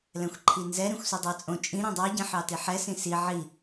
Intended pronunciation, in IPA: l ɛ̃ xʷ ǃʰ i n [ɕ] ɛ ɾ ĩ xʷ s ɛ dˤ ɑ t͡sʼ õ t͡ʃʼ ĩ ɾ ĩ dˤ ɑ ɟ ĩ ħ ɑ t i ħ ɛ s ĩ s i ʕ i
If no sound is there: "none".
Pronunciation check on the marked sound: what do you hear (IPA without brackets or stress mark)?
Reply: z